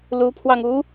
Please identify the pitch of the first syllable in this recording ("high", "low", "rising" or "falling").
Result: rising